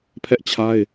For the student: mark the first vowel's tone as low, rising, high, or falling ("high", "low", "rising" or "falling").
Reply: high